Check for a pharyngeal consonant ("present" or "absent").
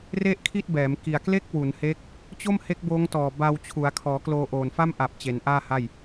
absent